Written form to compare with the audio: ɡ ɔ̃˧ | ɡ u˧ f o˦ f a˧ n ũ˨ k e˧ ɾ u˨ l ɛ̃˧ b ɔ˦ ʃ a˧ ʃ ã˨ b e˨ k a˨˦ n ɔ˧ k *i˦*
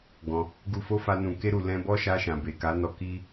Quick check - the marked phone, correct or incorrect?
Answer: correct